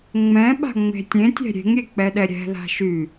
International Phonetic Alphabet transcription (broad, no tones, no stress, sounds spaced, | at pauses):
ŋ͡m ɛ̃ ɓ a̤ ŋ͡m e̤ tʲ ẽ tʲ ɛ̤ ɾʲ e̤ ŋ ɾʲ e k͡p ɛ ɗ ɛ ɾʲ ɛ̤ ð a̤ ʃ y